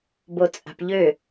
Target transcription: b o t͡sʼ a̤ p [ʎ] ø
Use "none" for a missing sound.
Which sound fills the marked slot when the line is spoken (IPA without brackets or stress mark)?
ʎ